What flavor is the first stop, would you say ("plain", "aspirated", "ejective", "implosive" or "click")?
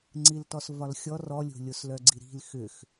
click